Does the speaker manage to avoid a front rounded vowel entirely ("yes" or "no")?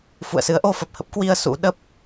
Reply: yes